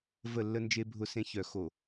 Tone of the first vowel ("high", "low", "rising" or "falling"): falling